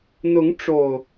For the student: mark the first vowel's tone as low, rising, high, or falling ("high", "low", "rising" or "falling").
rising